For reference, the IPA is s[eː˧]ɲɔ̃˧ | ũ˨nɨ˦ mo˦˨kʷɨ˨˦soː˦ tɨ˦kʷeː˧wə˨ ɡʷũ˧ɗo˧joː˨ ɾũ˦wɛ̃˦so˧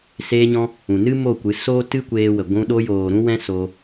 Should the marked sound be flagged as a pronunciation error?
no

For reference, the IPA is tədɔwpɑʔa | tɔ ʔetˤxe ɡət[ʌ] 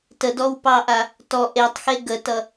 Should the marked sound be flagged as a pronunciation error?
no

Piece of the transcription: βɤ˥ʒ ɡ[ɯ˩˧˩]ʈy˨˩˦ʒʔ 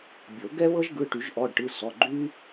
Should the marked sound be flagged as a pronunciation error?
no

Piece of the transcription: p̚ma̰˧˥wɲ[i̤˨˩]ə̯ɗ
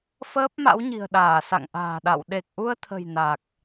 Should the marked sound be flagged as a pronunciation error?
no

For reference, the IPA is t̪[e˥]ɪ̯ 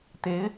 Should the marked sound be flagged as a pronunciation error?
yes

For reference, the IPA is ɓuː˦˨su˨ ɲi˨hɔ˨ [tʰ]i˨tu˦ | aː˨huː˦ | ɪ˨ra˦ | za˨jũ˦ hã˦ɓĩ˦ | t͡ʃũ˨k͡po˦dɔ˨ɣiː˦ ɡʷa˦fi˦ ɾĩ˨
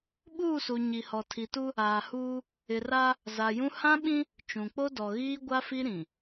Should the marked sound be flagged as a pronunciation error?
no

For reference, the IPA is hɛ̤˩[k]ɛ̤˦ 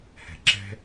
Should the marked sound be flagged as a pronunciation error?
yes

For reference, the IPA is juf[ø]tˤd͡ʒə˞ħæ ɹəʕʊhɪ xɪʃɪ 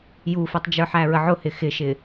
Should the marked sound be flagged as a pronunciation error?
yes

